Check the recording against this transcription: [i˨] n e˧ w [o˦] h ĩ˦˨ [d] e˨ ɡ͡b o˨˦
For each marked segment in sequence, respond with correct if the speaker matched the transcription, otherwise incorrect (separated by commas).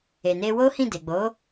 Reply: incorrect, correct, correct